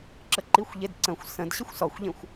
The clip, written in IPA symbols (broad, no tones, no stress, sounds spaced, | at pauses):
ǁ ə ǃ i xʷ ʎ e d ǀ ə̃ xʷ s ə̃ d ɕ ə xʷ s ɔ xʷ ʎ ẽ xʷ